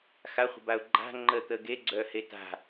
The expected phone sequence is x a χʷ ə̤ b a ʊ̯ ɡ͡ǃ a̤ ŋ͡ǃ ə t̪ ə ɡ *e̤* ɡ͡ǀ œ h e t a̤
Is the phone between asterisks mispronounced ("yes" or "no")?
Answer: yes